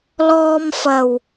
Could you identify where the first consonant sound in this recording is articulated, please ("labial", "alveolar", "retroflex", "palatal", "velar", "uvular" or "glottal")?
alveolar